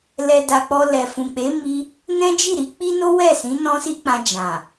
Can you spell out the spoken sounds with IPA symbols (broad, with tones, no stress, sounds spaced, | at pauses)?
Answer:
l ɛ˧ d a˧ k͡p ɔ˧ l ɛ˨ f ũ˨ k͡p e˨˦ m i˦ | n ɛ̃˦ d͡ʒ i˦˨ ɾ i˨˦ k͡p i˦ n o˦ w ɛ˦˨ s ĩ˨˦ n ɔ̃˦ s i˦ k͡p ã˧ d͡ʒ ã˨